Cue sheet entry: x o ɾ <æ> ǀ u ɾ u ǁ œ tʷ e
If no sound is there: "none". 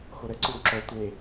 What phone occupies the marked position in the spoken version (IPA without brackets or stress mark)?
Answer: ə